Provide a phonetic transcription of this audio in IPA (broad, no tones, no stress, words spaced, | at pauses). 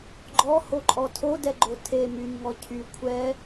ɡ͡ǃɔhoǃʼɔ tʰodɛɡ͡ǃo tʰe myɲŋɔ cʰy kʷʰɛ